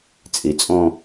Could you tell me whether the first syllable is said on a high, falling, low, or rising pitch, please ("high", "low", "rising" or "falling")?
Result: low